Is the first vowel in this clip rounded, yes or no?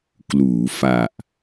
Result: yes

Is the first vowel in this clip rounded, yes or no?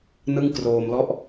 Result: no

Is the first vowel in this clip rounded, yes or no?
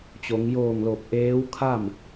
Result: yes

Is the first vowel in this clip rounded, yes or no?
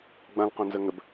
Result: no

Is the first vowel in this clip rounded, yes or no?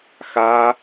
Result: no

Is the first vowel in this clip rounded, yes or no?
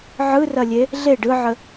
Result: no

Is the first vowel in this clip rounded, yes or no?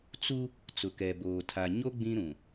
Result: yes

